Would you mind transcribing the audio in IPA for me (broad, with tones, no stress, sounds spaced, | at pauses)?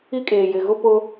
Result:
i˦ kʼ eː˨ j ɪ˨ ɣ ʊ˦ p ʊ˦